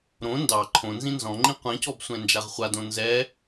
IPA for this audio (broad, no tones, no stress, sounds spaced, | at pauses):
ɾ õ n d ɑ ǃʰ õ n z ĩ n z ɔ̃ ŋ͡ǃ ĩ qʷ ɛ̃ c ɔ b sʷ ɛ̃ n d͡ʒ a ʁ χʷ a d õ n z ɛ